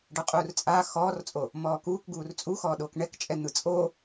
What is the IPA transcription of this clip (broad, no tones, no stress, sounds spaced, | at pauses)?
ɖ ɤ qʼ uː r t͡sʼ a x ɔː r t͡sʼ o | m ɔː k uː k ɡ uː r t͡sʼ u x ɔː ɗ oː k ɳ ɛ k t͡ʃʼ ɛ n̪ ɯ t͡sʼ o